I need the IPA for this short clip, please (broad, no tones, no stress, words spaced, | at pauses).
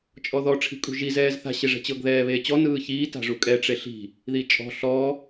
t͡ʃʼɔðɔ ʈ͡ʂʰi̤kʼṳʒi zɛːzθa̤ ɕeʐɛ̤t͡ɕɤɡ ðɛːβeːt͡ɕɔ nɯːçiː ta̤ʐukʼɛ ʈ͡ʂeɬi̤ | ðit͡ʃʼɔ̤ ɬɔ